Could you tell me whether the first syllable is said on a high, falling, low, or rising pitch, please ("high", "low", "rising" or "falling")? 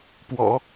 low